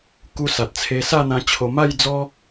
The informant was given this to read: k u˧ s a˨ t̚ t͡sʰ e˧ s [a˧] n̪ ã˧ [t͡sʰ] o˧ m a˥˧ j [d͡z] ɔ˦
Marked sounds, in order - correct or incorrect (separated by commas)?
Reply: incorrect, incorrect, correct